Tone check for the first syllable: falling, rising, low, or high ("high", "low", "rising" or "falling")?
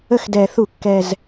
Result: falling